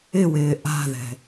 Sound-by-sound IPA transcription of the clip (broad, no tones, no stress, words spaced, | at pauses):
ɪwɪː ʔa̤ðɛ̤